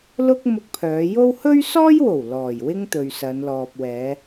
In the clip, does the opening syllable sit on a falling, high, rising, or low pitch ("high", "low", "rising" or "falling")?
high